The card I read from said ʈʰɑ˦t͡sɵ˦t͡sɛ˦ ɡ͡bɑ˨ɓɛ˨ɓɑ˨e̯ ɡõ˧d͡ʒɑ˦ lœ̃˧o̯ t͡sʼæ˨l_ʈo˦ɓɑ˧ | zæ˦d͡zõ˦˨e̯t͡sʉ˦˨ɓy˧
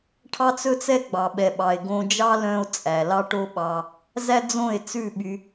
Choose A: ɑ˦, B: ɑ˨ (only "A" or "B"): A